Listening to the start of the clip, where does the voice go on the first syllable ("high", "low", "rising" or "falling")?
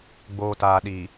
low